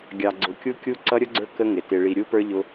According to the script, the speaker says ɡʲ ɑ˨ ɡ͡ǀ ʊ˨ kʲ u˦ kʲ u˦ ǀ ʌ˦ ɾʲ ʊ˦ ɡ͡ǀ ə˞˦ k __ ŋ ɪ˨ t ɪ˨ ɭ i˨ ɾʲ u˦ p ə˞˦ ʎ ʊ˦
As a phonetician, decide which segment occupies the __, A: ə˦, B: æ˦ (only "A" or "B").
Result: A